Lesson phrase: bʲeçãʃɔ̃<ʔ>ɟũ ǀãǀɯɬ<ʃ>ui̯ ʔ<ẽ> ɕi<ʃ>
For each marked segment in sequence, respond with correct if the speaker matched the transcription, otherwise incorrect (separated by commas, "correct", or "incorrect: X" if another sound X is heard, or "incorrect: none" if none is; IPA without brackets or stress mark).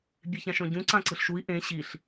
incorrect: none, correct, correct, incorrect: ɬ